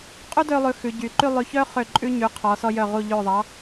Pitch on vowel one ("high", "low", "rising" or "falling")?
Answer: high